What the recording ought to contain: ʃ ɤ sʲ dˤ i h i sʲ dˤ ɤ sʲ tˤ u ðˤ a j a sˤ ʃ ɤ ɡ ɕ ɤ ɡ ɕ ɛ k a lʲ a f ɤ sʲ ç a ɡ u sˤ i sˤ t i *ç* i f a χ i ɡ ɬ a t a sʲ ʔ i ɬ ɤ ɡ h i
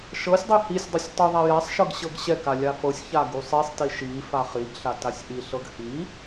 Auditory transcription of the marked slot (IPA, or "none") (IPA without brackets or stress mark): ʃ